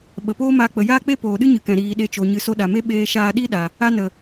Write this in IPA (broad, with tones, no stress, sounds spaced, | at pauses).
ɓ ə˨ p oː˦ m aː˧ k͡p ə˨ j aː˦ k͡p e˦ p oː˨ ɗ ɨ˦ ɲ ɨ˨ k ɛ̃˨ ɾ iː˨ ɗ e˧ t͡ʃ o˨ ɲ ɨ˧ s o˧ ɗ a˨ m e˦ ɓ eː˧ ʃ aː˧ ɗ i˦ ɗ a˨ | a˦ n ə˨